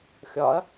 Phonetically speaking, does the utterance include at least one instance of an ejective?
no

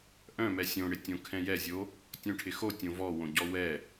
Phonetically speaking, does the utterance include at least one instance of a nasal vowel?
yes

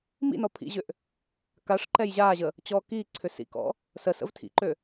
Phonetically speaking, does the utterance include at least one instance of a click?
yes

